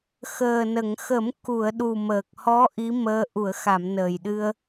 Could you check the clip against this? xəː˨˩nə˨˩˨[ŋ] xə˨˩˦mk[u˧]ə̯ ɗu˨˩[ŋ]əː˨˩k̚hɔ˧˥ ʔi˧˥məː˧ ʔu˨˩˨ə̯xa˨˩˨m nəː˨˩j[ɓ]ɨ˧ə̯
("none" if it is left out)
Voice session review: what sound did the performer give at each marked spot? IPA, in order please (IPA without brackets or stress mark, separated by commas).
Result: ŋ, u˨˩˨, m, ɗ